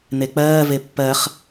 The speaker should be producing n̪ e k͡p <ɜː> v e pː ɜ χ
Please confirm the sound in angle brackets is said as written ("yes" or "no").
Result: yes